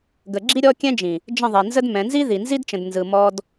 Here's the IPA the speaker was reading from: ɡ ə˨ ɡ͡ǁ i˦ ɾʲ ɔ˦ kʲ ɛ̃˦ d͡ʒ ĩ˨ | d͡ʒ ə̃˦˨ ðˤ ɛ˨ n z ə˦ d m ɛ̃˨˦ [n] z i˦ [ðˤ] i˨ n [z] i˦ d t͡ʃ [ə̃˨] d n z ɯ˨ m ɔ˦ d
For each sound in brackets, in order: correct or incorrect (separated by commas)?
correct, incorrect, correct, correct